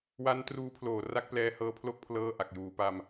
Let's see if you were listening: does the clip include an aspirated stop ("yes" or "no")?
yes